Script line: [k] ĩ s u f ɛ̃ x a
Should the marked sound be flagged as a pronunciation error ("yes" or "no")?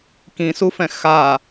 no